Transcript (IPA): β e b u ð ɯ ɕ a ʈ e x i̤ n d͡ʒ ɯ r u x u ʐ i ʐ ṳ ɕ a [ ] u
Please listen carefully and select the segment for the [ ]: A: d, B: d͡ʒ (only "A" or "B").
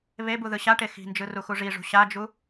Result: B